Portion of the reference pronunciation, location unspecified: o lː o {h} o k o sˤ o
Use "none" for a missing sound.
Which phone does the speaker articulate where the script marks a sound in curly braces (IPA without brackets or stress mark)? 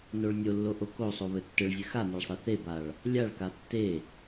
ʔ